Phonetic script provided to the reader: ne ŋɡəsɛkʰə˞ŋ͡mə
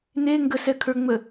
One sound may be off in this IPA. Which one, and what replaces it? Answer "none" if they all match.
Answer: none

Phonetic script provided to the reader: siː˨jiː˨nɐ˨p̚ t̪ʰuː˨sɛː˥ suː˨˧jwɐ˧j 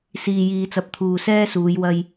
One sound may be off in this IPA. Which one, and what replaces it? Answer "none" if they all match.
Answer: n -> t͡s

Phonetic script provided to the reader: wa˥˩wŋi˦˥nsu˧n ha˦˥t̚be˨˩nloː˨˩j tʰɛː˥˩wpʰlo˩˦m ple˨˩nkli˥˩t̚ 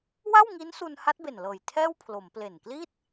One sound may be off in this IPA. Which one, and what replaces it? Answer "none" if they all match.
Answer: oː˨˩ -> ɤː˨˩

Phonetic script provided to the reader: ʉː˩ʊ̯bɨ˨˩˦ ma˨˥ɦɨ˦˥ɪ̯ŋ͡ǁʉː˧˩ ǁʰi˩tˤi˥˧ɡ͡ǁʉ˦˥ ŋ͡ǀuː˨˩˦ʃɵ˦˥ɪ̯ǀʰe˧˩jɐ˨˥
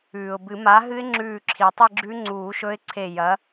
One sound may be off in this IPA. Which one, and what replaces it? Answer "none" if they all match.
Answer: none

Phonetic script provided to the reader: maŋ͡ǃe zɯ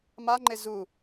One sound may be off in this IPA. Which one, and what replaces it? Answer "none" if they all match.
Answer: ɯ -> u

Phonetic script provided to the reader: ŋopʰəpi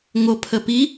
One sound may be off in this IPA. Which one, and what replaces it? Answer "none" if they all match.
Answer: none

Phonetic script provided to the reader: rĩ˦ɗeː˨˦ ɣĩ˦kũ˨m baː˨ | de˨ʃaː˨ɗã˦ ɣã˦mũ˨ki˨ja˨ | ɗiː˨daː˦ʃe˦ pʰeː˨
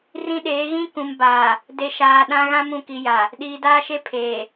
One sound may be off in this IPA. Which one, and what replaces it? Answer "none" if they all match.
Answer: none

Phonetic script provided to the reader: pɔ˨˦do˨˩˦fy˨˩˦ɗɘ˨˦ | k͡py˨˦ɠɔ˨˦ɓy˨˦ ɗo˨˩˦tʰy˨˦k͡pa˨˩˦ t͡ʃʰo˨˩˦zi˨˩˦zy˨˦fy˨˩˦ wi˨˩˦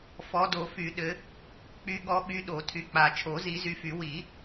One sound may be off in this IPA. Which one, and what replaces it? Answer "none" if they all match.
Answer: p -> f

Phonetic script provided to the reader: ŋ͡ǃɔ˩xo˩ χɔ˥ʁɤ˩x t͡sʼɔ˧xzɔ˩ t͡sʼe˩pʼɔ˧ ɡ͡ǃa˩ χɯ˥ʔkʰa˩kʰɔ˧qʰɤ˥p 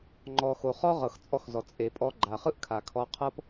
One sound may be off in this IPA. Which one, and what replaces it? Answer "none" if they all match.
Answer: none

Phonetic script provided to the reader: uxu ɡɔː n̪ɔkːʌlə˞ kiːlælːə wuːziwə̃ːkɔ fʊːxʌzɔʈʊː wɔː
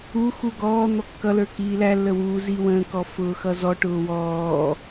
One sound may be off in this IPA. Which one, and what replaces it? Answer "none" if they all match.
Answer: none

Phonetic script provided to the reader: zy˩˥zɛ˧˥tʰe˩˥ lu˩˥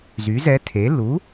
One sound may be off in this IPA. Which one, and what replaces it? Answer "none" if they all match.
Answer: none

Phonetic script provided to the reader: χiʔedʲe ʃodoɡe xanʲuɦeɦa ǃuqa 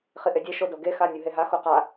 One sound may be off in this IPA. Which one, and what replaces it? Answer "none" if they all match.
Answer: ǃ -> x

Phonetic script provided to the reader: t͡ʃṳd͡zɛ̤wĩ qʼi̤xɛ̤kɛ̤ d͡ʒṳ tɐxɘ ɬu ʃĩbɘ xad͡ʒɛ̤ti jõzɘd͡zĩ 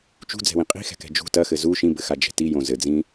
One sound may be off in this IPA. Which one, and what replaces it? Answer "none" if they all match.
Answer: ɬ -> z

